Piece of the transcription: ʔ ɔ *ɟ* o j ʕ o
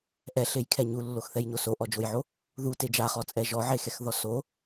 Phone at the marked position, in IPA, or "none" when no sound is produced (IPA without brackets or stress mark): d͡ʒ